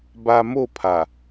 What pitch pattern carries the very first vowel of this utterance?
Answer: low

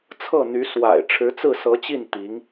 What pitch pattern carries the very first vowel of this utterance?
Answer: falling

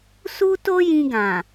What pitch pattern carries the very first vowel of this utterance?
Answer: high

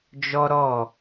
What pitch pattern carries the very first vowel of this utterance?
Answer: high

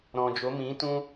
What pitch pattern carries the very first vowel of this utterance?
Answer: low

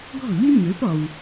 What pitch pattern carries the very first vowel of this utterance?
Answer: falling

